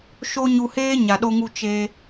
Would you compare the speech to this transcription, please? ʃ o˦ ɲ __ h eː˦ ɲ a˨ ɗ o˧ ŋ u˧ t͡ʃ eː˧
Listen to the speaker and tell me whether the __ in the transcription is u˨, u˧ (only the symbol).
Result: u˧